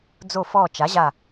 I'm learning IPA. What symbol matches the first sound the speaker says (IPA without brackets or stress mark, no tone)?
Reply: d͡z